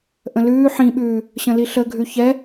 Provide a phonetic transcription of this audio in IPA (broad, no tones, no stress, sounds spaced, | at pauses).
ʔ ə̃ l ʉː ħ ĩ ɓ ʉː | ɕ ə̃ l i ɬ ə ɡʱ ʉ ç ɛ